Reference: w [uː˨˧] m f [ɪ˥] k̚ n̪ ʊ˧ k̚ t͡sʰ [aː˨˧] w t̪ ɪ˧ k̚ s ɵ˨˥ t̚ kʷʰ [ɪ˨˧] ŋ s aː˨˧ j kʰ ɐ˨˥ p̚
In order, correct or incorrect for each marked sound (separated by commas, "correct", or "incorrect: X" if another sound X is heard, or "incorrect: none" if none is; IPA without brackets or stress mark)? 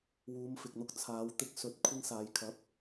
correct, incorrect: ɪ˨, correct, incorrect: ɪ˧